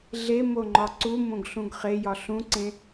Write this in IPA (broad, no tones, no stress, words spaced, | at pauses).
ɮemoŋ͡ǃɒ ǀumõɡ ɬũɡχe jɒɬũǀẽ